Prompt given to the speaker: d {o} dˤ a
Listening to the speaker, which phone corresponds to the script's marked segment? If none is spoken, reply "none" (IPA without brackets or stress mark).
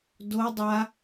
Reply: o